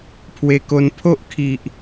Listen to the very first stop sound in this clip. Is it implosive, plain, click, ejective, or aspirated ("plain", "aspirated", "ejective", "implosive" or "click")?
aspirated